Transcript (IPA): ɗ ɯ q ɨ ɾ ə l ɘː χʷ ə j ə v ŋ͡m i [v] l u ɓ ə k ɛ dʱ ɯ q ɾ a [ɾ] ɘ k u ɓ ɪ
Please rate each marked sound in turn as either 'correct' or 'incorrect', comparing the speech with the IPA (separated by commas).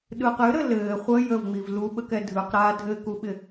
correct, incorrect